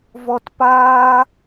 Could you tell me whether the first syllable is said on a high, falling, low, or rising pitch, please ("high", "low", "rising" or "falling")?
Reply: low